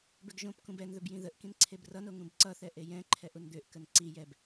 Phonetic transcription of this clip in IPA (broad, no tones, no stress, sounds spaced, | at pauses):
b ʏ ɡ ʒ õ p k ũ b ɛ n ð ɵ b j ĩ ð ə ʔ k ĩ n ǀʰ e b r ʌ n o ŋ ũ b ǀ ʌ θ ɛ ʔ e j ɛ̃ ǃʰ ɛ ʔ u n d̪ ʏ ʔ k ə n ǀ i j ɛ b